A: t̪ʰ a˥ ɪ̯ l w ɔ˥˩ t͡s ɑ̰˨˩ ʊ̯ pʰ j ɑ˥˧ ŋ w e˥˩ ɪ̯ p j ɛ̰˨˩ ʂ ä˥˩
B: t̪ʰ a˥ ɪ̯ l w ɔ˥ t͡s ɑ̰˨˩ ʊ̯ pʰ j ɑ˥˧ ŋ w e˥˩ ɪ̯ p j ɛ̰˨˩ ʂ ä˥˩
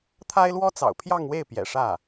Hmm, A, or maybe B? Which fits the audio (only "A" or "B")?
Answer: B